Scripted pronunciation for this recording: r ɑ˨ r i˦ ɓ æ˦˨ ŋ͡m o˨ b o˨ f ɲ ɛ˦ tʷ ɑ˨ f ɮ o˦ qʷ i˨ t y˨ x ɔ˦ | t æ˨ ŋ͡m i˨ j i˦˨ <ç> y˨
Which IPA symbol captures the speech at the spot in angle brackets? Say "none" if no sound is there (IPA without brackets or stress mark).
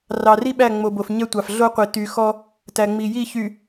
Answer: ç